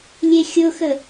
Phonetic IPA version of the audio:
lʲ e xʲ ʊ x ə

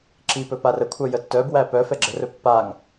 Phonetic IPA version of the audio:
ǁ i p ɵ p a r ə kʷʰ œ j ə tː œ b w æ p œ f ɛ ɡ͡ǁ ə r ɵ pː a ŋ

